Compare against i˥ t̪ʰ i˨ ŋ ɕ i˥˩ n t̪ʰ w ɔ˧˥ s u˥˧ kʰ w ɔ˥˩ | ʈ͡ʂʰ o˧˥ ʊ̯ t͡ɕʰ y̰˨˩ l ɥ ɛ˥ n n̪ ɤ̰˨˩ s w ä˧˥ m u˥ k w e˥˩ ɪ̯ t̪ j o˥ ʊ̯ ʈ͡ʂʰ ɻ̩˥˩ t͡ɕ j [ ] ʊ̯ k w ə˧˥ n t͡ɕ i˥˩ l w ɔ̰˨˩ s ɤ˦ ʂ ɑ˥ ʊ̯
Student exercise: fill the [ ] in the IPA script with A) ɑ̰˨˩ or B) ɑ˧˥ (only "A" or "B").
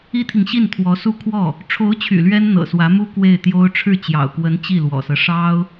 A